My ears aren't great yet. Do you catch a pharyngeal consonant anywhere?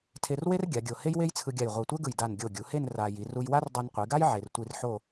yes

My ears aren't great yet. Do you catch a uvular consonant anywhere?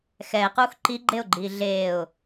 yes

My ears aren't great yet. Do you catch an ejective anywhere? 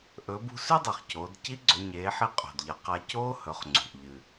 yes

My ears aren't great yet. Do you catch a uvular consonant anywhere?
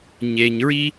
no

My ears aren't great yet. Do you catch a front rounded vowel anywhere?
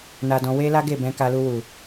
no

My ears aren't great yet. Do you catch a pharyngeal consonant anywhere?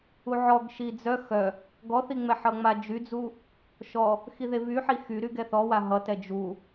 yes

